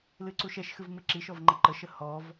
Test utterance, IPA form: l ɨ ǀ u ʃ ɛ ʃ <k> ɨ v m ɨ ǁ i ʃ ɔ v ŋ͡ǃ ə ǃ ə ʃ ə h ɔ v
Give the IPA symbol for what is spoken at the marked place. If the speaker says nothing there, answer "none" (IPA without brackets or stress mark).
x